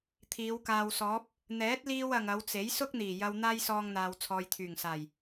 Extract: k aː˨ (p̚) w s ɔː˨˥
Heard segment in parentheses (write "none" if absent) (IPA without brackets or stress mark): none